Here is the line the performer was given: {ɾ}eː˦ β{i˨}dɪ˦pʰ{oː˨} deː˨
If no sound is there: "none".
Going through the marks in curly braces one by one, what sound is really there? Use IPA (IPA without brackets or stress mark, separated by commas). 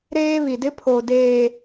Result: ɾ, i˨, oː˨